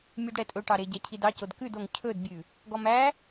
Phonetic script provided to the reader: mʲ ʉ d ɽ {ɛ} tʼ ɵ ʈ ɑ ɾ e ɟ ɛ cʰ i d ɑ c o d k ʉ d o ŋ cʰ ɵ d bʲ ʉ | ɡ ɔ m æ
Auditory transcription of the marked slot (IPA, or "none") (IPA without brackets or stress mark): ɛ